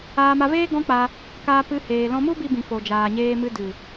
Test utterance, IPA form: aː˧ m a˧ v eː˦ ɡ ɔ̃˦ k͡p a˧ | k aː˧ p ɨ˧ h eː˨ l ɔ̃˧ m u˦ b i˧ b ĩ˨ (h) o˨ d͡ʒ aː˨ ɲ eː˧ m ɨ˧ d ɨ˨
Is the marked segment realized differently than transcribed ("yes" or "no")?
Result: yes